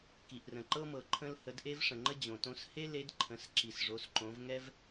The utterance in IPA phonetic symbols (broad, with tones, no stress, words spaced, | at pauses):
ki˩ʔrə̃˩ǃɤ˥mɤ˩ ǃʰə̃˧lhə˩˧d ʔe˧vʂə̃˩ŋ͡ǃə˧ d͡ʑõ˩tõ˧˥s he˥ le˧˥dǃʰə̃˩˧s ǁi˩sʐo˩˧sǃõ˩˧v ŋɛ˥v